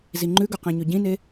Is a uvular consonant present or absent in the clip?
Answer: present